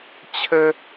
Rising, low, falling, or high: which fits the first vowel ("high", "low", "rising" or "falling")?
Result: high